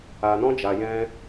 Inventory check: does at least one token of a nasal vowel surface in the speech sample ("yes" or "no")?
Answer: yes